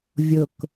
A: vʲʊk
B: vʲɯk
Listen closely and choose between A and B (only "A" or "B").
A